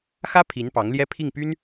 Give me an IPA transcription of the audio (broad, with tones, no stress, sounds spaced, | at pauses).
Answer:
x ä˥ pʰ i˧˥ n p ɑ˧˥ ŋ l j ɛ˥ pʰ i˥˩ ŋ p y˥ n